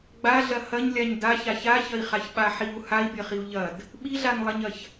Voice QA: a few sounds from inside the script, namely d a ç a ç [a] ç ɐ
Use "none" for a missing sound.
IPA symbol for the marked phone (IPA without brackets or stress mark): a